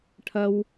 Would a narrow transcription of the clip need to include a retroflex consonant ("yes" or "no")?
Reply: yes